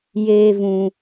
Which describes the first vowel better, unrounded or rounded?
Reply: unrounded